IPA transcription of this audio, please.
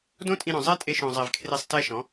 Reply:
d õ˦ tʼ ĩ˧ ɾ õ˨ zˤ e˦ tʼ e˧ ʃ õ˨ zˤ e˨ v kʰ r e˧ sˤ t ɛ˦ ʃ ɔ̃˨˦

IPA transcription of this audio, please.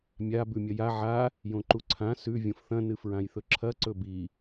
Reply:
mʲ a b ʉ mʲ ɐ j a ʕ a | j õ ǃ u ǀʰ ã s ʉ vʲ õ f θ ɐ̃ n ɨ f ɹ ã j θ ɵ ǁʰ ɐ ǀ ɵ b i

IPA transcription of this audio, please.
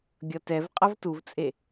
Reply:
ɡʲ ʌ t ɛ v qʼ ʌ v t u v t͡sʼ e

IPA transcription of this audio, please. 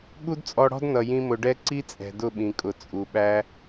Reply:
ɠ u˦ d t͡sʼ ɔ˧ ɽ ɔ̤˦ d n ʌ˨ j ĩ˧ m ʊ˨ ɖ ɛ˧ ǀ i˦ t͡sʼ ɛ̤˨ d ʊ˦˨ ɓ ĩ˨ kʼ ʊ˨ t͡sʼ u˨ ɓ æ˦

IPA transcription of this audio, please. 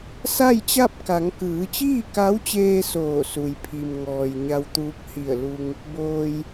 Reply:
s a˥˨ j t͡ɕ a˥˨ p̚ k a˩˧ ŋ k ɯː˩˧ t͡ɕ iː˥˨ k a˧˥ w t͡ɕ eː˧ s oː˧˩ s u˩ j pʰ i˩ m ŋ ɔː˩ j ɲ a˧ w t̪ uː˧˥ k̚ h i˧˩ ə̯ l u˧ ŋ | b oː˩ j

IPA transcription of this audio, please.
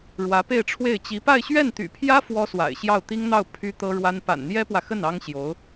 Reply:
ɻ w ä˧˥ p e˥˧ ɪ̯ ʈ͡ʂʰ w e˥˩ ɪ̯ t͡ɕ i˧˥ p a˥˧ ɪ̯ ɕ ɥ ɛ˥˩ n t̪ y̰˨˩ pʰ j ä˥ f w ɔ˥ s w a̰˨˩ ɪ̯ ɕ j ɑ˥˩ ʊ̯ t̪ i˥ ŋ n̪ ɑ˥˩ ʊ̯ pʰ y˥ t̪ ɤ˥ ɻ w a˥ n p a̰˨˩ n n̪ j ɛ˥ p w ä˨ x ə˥˩ n ɑ˥ ŋ ɕ j o˧˥ ʊ̯

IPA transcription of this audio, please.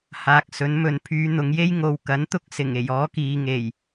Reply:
h aː˨˥ k̚ s ɵ˨˥ n m ɵ˨˧ n pʰ yː˨˧ n̪ ʊ˨˧ ŋ j e˥ j ŋ o˨˧ w k ɐ˨˥ n t̪ ʊ˥ k̚ s ɪ˨˩ ŋ e˨˩ j ɔː˨˥ k iː˨ ŋ e˨˩ j

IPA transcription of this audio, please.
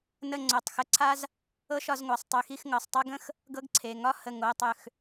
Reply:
n ə˥˧ ŋ͡ǀ o˧˩ tˤ x ə˥ ǀʰ a˥ z | ɤ˥ ʃ ɒ˥˧ z ŋʷ a˩˧˩ sˤ tˤ ø˧˩ x i˥˧ x ŋ ɤ˩˧˩ sˤ tˤ a˥ ɡ ə̃˥ x | ɡ ɤ˥ ɡ ǀʰ e˩˧˩ ŋ ɒ˥˧ h ə˧˩ ŋ o˩˧˩ tˤ ø˧˩ x

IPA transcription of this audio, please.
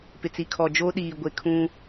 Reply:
p ɪ˨ t͡s i˨ kʰ ɔ˨ d͡ʒ o˦ ɗ iː˨ ɡʷ e˨ kʰ ũ˦

